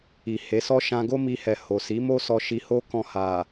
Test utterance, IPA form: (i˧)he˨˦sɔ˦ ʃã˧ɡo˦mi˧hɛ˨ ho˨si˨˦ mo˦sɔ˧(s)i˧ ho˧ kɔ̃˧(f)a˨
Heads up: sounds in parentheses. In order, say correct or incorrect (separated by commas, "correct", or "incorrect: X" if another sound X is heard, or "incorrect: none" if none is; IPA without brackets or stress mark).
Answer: incorrect: i˨, incorrect: ʃ, incorrect: h